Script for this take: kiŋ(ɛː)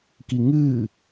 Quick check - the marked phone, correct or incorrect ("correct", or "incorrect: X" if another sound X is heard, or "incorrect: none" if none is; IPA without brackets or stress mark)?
incorrect: ɨː